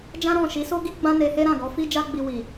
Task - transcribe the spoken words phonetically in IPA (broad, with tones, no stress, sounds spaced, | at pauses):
d͡ʒ ã˦ ɾ ɔ̃˦˨ ʃ i˨˦ s o˦ ɡ i˦ ɡ͡b ã˦ n e˧ h e˦ ɾ ã˦˨ ɡ ɔ˨˦ f i˦ d͡ʒ a˦ ɡ͡b i˧ w i˨